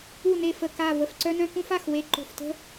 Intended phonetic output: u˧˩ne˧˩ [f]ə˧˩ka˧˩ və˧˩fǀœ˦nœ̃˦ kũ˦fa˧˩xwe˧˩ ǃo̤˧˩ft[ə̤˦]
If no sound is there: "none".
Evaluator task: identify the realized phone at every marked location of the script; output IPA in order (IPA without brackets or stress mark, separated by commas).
f, ə̤˦